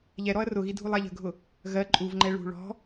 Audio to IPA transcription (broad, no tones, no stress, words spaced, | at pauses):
ʎɛɾɔɐ̯ rʊɣi dʱulˠæʎə̤ɡʱʊ | ɣɜ ǃʼuvŋ͡ǃɛ ɭṳ ɭɔ̤